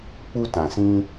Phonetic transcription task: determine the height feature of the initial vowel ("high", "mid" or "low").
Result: high